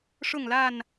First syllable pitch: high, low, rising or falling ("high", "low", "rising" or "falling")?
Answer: falling